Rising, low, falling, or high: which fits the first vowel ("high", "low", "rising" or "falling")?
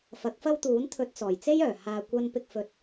rising